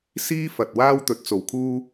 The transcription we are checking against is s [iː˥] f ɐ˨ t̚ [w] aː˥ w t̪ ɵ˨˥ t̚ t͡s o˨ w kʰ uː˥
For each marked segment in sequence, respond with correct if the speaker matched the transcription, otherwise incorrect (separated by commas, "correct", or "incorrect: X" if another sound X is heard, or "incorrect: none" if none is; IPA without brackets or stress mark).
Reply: correct, correct